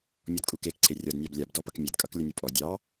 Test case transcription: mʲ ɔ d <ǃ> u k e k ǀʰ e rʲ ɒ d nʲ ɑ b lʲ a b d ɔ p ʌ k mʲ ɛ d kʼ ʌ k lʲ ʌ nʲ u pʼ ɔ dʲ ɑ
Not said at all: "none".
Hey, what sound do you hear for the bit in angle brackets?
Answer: kʼ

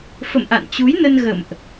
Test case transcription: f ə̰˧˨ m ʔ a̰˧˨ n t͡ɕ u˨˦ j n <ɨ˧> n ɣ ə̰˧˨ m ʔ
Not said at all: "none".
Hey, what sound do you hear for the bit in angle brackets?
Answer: ə˧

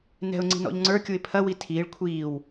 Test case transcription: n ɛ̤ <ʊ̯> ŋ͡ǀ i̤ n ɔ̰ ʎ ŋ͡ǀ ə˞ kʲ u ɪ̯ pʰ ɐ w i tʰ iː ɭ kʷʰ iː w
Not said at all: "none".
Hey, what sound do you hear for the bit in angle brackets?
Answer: ʊ̯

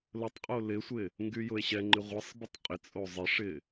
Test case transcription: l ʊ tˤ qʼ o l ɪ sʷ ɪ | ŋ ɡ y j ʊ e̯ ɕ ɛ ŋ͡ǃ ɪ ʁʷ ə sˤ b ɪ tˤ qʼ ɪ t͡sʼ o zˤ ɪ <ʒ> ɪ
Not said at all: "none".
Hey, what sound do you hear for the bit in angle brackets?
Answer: ʂ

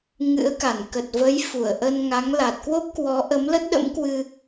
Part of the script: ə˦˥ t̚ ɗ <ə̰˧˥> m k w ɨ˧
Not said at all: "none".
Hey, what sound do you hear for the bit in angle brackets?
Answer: ə̰˧˥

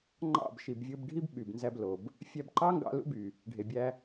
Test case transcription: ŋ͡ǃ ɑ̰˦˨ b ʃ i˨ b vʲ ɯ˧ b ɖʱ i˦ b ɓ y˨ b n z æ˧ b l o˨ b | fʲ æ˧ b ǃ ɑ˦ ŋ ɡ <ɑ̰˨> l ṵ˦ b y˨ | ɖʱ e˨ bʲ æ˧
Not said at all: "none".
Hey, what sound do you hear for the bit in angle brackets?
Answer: ɑ̰˧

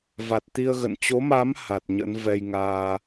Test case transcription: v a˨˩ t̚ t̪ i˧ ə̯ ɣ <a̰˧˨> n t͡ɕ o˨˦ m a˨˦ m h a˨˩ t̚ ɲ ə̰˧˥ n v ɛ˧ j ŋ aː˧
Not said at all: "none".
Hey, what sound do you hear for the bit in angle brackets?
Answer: ə̰˧˨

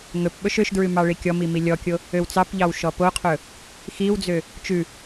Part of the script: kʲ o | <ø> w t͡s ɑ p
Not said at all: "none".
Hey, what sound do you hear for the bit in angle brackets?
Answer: ø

